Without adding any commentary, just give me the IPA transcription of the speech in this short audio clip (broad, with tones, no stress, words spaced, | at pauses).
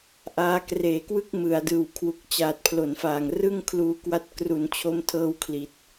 ʔaː˧kreː˨˩ kwɯ˥˩k̚mɯ˩˦a̯dɯː˨˩wkʰwu˨˩k̚ t͡ɕaː˨˩t̚pʰlo˩˦nfaː˨˩ŋrɯ˥˩ŋ kʰluː˧kwa˦˥t̚ kru˩˦nt͡ɕʰo˧mtʰɤː˦˥w kʰli˨˩t̚